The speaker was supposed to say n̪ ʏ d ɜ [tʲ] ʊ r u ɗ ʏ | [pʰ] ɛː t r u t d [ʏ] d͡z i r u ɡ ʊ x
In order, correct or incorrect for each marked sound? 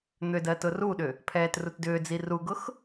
incorrect, correct, incorrect

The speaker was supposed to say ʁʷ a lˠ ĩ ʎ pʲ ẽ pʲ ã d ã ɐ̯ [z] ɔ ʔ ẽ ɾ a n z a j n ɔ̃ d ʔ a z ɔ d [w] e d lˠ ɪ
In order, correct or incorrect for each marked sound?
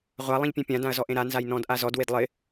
correct, correct

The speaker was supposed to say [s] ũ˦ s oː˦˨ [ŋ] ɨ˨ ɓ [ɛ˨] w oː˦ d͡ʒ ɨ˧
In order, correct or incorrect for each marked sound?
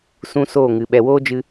correct, correct, correct

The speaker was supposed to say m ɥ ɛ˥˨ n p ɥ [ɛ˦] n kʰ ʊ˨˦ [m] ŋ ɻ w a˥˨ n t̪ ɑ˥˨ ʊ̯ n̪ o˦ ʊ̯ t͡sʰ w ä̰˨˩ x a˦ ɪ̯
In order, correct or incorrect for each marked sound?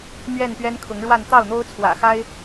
correct, incorrect

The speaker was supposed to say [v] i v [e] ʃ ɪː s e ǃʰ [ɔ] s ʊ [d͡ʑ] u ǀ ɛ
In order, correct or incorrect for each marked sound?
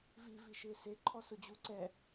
correct, incorrect, correct, correct

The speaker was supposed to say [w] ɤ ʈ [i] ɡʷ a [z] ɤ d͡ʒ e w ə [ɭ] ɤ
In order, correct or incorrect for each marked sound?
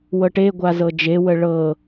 correct, incorrect, correct, correct

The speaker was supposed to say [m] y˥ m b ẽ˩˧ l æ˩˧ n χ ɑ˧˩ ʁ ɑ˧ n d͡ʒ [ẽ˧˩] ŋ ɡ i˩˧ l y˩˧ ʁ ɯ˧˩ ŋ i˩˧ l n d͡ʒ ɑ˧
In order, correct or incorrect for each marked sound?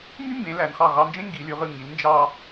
correct, incorrect

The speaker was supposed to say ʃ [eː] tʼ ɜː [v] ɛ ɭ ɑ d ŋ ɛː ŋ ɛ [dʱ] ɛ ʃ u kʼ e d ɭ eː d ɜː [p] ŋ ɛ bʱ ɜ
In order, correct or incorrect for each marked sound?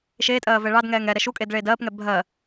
correct, correct, incorrect, correct

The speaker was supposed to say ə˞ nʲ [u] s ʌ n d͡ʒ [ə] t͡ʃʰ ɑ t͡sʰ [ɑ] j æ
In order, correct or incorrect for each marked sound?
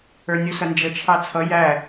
correct, correct, incorrect

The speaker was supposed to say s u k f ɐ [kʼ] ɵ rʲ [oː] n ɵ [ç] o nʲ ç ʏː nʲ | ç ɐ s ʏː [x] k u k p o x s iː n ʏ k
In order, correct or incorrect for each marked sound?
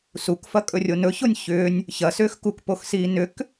correct, incorrect, correct, correct

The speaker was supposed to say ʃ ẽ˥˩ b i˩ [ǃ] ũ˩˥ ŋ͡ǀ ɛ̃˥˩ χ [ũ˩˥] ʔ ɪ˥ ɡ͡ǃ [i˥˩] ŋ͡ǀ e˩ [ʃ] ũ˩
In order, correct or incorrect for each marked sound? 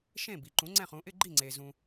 correct, correct, correct, incorrect

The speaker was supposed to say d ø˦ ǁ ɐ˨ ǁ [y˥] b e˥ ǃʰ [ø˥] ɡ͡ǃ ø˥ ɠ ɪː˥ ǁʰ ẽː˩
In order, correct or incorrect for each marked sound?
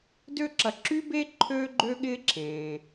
correct, correct

